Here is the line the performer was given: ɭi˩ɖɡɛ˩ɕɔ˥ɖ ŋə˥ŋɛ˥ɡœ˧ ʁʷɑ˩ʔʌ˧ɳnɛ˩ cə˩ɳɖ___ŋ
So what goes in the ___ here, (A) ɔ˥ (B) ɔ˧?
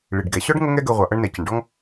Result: A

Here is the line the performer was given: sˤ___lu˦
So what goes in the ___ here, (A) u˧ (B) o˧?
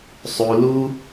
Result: A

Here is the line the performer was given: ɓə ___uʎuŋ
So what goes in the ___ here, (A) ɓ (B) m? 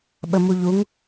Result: B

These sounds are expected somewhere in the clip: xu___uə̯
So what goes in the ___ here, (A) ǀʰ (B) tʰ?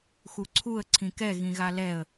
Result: A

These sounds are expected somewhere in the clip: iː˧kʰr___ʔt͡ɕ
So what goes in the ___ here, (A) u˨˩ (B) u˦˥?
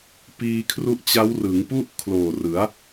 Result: B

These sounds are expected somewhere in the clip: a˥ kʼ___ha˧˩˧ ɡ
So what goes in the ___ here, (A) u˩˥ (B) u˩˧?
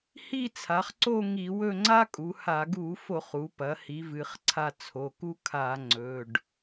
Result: B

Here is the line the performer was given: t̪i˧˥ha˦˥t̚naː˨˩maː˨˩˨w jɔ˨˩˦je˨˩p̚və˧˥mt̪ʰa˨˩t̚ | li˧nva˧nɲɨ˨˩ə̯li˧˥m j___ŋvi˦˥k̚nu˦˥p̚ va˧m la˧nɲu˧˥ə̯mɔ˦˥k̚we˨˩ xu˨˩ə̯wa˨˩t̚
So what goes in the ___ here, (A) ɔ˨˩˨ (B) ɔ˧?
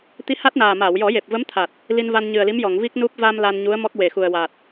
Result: A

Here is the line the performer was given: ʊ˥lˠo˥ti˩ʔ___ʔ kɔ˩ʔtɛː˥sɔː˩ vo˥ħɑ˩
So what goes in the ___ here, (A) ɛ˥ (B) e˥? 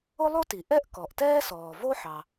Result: A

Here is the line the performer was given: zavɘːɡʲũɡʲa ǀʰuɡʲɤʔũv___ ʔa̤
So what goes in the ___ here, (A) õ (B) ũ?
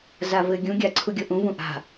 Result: B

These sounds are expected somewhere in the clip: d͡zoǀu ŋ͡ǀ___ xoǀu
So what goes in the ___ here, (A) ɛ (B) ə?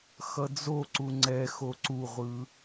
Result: A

